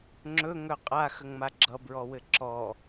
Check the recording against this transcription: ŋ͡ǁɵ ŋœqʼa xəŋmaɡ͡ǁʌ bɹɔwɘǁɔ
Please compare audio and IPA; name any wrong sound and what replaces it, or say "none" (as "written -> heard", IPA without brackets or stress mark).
none